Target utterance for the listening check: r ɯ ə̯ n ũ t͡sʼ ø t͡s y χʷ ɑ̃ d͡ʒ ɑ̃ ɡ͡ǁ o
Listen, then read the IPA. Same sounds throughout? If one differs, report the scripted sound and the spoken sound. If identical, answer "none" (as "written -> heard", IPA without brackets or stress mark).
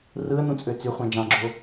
none